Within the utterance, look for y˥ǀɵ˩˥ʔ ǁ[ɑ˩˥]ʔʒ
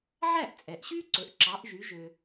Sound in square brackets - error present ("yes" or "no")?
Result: no